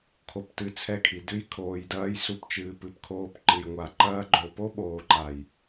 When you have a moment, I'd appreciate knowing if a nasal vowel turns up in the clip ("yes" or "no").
no